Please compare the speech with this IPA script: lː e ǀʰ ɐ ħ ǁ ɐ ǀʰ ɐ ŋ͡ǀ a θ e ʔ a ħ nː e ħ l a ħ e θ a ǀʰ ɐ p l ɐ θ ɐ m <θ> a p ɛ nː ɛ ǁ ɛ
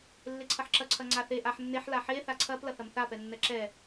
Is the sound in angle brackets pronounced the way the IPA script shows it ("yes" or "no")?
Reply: yes